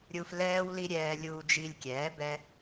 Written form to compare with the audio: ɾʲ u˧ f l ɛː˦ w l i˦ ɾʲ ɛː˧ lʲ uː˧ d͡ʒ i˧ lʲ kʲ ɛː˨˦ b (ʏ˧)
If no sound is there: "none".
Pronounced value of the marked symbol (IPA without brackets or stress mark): ɛ˧